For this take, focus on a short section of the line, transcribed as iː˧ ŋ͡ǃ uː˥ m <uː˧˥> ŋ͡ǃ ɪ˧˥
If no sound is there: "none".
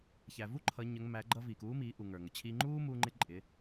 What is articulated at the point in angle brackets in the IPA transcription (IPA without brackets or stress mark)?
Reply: uː˧